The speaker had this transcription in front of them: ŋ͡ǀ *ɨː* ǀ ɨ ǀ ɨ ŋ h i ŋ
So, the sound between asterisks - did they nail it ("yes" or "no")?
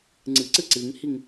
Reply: no